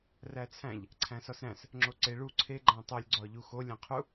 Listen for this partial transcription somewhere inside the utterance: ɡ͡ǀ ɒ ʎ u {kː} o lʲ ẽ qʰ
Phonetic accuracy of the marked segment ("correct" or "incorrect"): incorrect